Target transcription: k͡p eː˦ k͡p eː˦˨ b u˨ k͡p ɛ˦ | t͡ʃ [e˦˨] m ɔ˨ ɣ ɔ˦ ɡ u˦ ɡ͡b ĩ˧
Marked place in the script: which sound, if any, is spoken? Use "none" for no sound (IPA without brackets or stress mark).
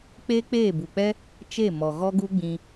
e˦˨